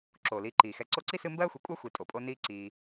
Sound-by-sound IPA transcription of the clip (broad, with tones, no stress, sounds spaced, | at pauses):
ǁ oː˩ l iː˨ ǃ iː˩ x ɛ˨ ǀ o˦ ǀ i˥ s ɨ˦ m b ɜː˥ xʷ i˨ kʷʼ ɜ˥ xʷ i˨ tʼ o˩ pʼ o˦ n iː˦ ǀ iː˨